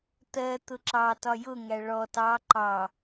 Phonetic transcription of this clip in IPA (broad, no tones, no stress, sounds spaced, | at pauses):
t̪ ɜ t̪ ʊ ǁ ɑ t ɒ j ʊ ŋ æ ɭ ɔ t ɑ ǃ ɑ